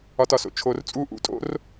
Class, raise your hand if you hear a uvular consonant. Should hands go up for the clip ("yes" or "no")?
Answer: no